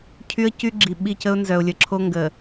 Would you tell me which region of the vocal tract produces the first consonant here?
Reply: palate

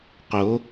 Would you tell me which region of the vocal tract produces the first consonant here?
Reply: uvula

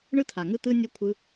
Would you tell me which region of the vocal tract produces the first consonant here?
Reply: retroflex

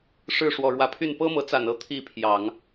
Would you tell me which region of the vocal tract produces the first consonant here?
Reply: retroflex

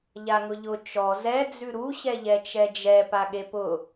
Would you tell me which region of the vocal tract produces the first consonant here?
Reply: palate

